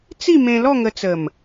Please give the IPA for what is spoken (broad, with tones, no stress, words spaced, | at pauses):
t͡si˥˧mẽ˧lɔ˥˧ ŋə˧t͡sə˨˩m